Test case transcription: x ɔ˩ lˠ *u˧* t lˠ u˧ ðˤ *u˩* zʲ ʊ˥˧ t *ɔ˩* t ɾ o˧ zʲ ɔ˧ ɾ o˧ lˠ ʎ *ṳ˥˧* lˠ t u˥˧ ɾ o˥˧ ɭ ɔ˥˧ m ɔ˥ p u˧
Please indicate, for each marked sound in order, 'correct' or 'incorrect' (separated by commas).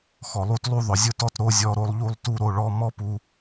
correct, incorrect, incorrect, incorrect